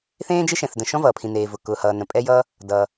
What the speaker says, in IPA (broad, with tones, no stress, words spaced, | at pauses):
θẽː˥d͡ʒe˥ʃɛ̃˩θdə̃˩ ʃɔ̃˥vʌː˩pʰĩ˩ neː˩vʊ˩ kʊː˩hʌː˩ nə̃˩pʼɛ˥jʌː˥ | dʌː˩